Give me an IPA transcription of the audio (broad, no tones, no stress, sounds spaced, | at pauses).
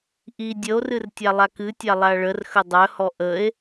ʔ i dʲ ə o̯ r ɨ r tʲ a lˠ a k ɨ tʲ a lˠ a ɭ ə r x ə dˤ œ h ɔ ʔ ə e̯